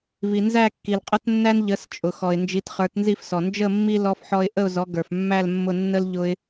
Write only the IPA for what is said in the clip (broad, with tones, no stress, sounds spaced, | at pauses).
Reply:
v i˨ n z æ˥˧ kː i˨ l qʼ ə˥ t nː æ˥ n ʎ ə˨˥ s t͡ʃʼ ʊ˨ x ɔ˨ ɪ̯ n d͡ʒ i˨˥ t χ ə˞˨˥ t n z i˥˧ f s ɔ˨ n d͡ʒ ə˥˧ mː i˥ l ɔ˥ f ħ ɔ˥ ɪ̯ ʔ ə˥˧ ʊ̯ z ɔ˨˥ ɡ ə˞˨ f mː æ˥˧ l mː ʊ˥˧ nː ə˥ l ʎ ʊ˥ ɪ̯